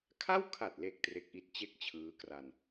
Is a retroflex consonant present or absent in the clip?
absent